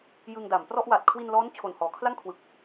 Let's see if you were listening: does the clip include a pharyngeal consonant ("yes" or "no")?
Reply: no